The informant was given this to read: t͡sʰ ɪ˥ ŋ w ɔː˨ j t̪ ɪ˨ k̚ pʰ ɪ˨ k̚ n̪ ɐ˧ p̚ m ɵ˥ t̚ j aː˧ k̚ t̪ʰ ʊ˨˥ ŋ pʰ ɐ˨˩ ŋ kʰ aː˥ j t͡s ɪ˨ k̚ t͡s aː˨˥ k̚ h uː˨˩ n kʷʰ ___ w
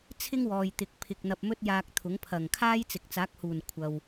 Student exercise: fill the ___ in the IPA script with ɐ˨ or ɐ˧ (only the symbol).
ɐ˨